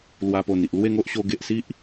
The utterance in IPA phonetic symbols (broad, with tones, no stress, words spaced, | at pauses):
lwa˧po˨˩ni˨ʔ lwe˥˧ŋo˦ʔ ɕo˧ɡe˨ʔ si˦ʔ